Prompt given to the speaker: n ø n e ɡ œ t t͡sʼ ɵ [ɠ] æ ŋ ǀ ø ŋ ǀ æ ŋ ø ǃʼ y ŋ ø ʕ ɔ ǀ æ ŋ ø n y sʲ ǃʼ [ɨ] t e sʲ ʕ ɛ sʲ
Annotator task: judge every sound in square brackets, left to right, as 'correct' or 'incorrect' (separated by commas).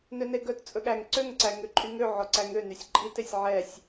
correct, incorrect